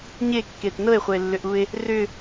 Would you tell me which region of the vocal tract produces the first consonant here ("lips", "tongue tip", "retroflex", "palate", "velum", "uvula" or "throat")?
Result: palate